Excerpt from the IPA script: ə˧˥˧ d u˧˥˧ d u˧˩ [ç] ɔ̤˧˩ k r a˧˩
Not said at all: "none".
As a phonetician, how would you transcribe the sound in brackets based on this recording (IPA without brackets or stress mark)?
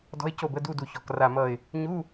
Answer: ç